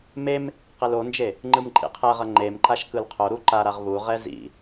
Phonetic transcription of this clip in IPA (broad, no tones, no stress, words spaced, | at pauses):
mem | qelond͡ʒe | ŋ͡ǃɯmǃʼḭqʰɛʁʌ ŋ͡ǃemǃaʃ kɯlqʰoɾu ǃaɾaʁ βuʁɛ zḭ